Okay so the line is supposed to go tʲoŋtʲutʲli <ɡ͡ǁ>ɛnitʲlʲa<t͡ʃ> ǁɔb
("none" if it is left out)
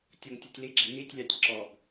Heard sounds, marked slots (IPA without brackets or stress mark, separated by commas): ɡ͡ǁ, tʲ